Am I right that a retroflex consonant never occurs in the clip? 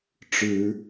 no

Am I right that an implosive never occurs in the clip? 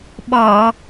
no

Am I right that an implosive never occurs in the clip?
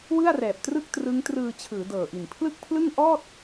yes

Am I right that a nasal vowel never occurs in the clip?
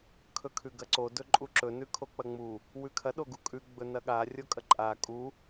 yes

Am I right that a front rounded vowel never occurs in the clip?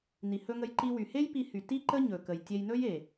no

